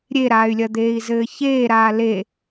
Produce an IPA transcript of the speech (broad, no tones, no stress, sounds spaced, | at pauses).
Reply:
ɾʲ e ɾ aː y̯ lʲ ɐ d̪ eː i̯ z ɘː ç eː ɾ aː l e